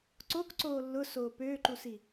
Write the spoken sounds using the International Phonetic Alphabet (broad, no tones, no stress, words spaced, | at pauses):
ǀokǀoː lːʊsoː pøːǃusi